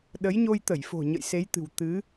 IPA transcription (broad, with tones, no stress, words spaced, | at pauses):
ɗə˨˦jɲo˧jt̪ə˧˩jfo̤˨˩ ɲə̰˧˨jse˨˦jt̪ɨ̤˨˩w t̪ɨ˨˦